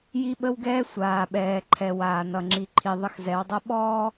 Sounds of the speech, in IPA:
ji˦ɓə˦wɡɛː˦ sʷaː˨ɓɛː˨ǃʰɛ˨ waː˨nʌ˨ŋ͡ǁi˨ ǃʰi˨ ðˤə˦xzɛ˨˦wdˤʌ˦ ɓɔː˦

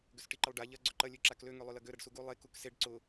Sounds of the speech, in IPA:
ɡʏsʈiǃɪlˠɖa ʎɐ ɡ͡ǀʏǃɐ lʲøǁaklø ŋølˠølɐɡø ɾɐɖsuɡu lˠe kukseɖ ǀʊ

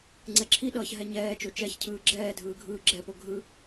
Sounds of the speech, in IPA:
ŋ͡ǀɛǁʰiɗʌːç ɦɛɲɛːt͡ʃo t͡ʃɛçcʰɯː ɡ͡ǁɛːdʱɯː ɡʱɯːɡ͡ǁɛpo ɡʱɯ

